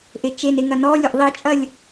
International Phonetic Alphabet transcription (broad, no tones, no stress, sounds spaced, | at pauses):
ʔ e t͡ʃ e n e ŋ ɐ n ɔ lʲ o ʔ ðˤ i t͡ʃʼ ɐ lʲ